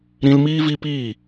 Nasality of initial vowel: nasal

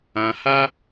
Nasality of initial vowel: nasal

